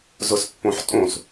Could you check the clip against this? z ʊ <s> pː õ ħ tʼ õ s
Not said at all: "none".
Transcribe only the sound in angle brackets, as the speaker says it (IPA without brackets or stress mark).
s